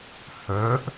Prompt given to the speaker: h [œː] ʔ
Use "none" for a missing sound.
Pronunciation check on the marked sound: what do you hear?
œː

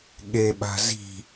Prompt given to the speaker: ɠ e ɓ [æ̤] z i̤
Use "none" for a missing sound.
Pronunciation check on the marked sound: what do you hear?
a̤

